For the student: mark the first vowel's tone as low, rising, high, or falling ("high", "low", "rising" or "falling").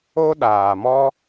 high